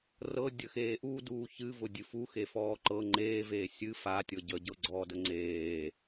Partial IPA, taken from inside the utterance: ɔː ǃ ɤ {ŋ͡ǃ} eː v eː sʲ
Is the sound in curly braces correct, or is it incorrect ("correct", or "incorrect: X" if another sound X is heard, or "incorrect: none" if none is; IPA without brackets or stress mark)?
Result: correct